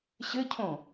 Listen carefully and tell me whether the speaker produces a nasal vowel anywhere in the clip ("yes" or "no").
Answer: yes